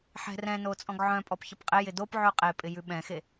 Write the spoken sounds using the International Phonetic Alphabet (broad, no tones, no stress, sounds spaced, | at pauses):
ħ ɛ̤ r ɛ̃ n o t͡sʼ ɔ̃ ɡ ʕ œ̃ pʼ ɔ p ç ə p qʼ ɪ j ɪ d o p ʕ ʉ qʼ e pʼ ɪ j ʉ ɓ ɛ̃ x e